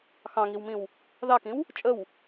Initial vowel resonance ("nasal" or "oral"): nasal